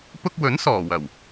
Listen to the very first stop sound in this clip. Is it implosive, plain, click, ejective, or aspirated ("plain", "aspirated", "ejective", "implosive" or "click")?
plain